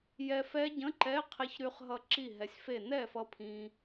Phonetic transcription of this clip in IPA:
j ɛ˧ f ɛ˦˥ ɟ ə̃˧˥˧ ǃ ɛ˧˥˧ qʰ e˧ ç ɾ y˧ χ ɦ ʌ˧ ǁ i˥˩ ɦ ɛ˨˥ sʲ f e˥˩ n ɛ˥˩ f ʌ˧ pʰ ĩ˧

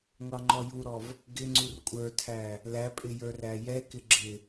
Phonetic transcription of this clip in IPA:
ŋʷ ɑ ŋ͡ǃ ɔ j u ɾ ɔ v | ɡ ɪ ŋ͡ǀ u r kʷʼ ə˞ tʰ æ | l æ pʼ ɪ j ə˞ r æ j ɛ k ɪ ɡ͡ǁ ɪ

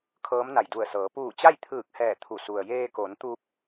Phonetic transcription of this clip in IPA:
kʰ ɤː˧˥ m n a˧˩ j d u˧˩ ə̯ s ɤː˩˧ p uː˧˩ t͡ɕ a˥˨ j t̪ʰ ɯː˧˩ k̚ h ɛː˧˩ t̪ʰ u˧˩ s u˩ ə̯ j eː˧ k o˩˧ n t̪ u˧ p̚

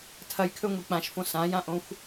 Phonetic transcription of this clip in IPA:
tʰ ɐ j kʰ ɵ ŋʷ i k͡p ã ʃ f õ s ã j ã ʔ õ xʷ

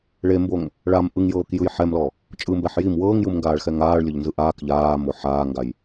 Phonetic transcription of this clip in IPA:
ɭ e m b o ŋ | ɭ a m ʔ ɯ ŋ j ɤː k j ɯ j ħ ɛ m l ɔ | t͡ʃʼ ɯ m b ɛ ħ j i m w ɤː ŋ j ɯ m ŋ ɡ aː ɭ x ɛ ŋ aː ɭ lʲ ɤ ʎ n z ɯ ʔ aː k ʎ aː m o ħ aː ŋ ɡ a j

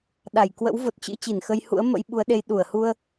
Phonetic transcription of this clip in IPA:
ɗ a˧˩ j k w ə̰˧˥ w v o˨˩ t̚ t͡ɕ ɨ̰˧˥ t͡ɕ i˧˩ n x ə˧ j h ṵ˧˥ ə̯ m ə̰˧˥ j ɓ u˨˦ ə̯ ɗ e˨˦ j ɗ u˧˩ ə̯ h u˧ ə̯

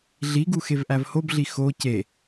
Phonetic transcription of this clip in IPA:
ɮ i ɡ u x e v ʔ æ v h o b ɮ i x o c e

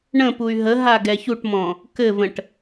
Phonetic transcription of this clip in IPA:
ɳ ə̃ p u y̯ ɦ ə ɦ a ɡ ɛ ç u ʈ m ɔ̃ | k ɘ v ə̃ ʈ

